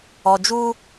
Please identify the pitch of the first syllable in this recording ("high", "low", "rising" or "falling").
low